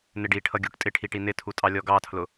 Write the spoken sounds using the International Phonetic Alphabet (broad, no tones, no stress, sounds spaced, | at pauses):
n ɪ ɖ i ʈʰ ʌ ɡʲ u ʈ tʼ ɪ ʈʰ i ʈ i n ɪ tʰ u tʼ ɑ lʲ ɔ ɡ ɑ tʰ l ʊ